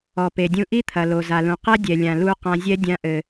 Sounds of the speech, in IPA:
ɔ˩ p e˩ dʲ ũ˧ ʔ i˥ t̪ʰ ɐ˩ l o˩ z a˩ l ũ˩ q ɛ˥ dʲ ɛ˩ lʲ ã˩ l u˧ q ã˧ zʲ ɛ˥ dʲ ã˧ ʔ ɘ˩

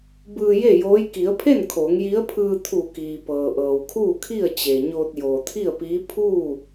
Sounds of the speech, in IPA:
b ɯː˧ j e˥˨ j oː˧˥ j k i˩˧ ə̯ pʰ e˥˨ n kʰ oː˩˧ ŋ j i˧˥ ə̯ pʰ ɯː˧ t̪ʰ u˧˩ k iː˩ p ɤː˩ ʔ ɤː˩ w kʰ uː˥˨ kʰ i˥˨ ə̯ t͡ɕ e˩ ɲ oː˧ t̚ j oː˩ t̪ʰ i˥˨ ə̯ p iː˧˥ pʰ uː˥˨

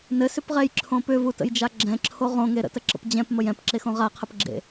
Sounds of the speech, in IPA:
n ɘ s ʏ p ʁ ɛ j ǁʰ õ p ʏ v u t ə̰ j d͡ʒ a ɡ͡ǁ ɛ̃ ǁʰ o ʁ õ ŋ e ɾ ə̰ t ə ǁ ə̰ p d͡ʑ ɛ̃ p m ə j ɛ̃ p ǁ e x õ ʁ a qʰ ə p ɡ͡ǁ ḛ

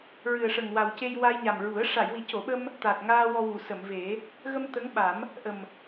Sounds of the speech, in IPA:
ɹ ɨ˨˩ ə̯ ʂ ə˨˩ ŋ w a˨˩ w c e˧ j w a˧ j ɲ a˨˩ m ɹ u˨˩˦ ə̯ ʂ a˨˩˨ j w i˨˩˦ c o˨˩˨ ɓ ə˧ m | t̪ a˨˩ t̚ ŋ aː˧ w ɔ˧ w u˨˩˨ s ə˨˩˨ m v e˨˩˦ | ɣ ə˧ m t̪ ə˧˥ ŋ ɓ a˨˩˦ m | ʔ ə˨˩ m

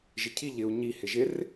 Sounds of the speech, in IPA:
ʒ ɪ cʰ i ʎ ɪ u̯ ɲ i h ɪ ʒ ɪ r

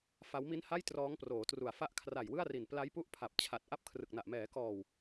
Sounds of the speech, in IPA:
f a˦˥ w m i˦˥ n h a˥˩ j t r ɔː˦˥ ŋ p r oː˩˦ t r u˨˩ a̯ f a˥˩ ʔ kʰ r a˨˩ j w ɯ˥˩ a̯ r i˨˩ n p l a˦˥ j p u˦˥ ʔ pʰ a˨˩ p̚ t͡ɕʰ a˨˩ t̚ ʔ a˥˩ p̚ kʰ r ɯ˨˩ k̚ n a˨˩ ʔ m ɛː˩˦ k ɔː˨˩ w

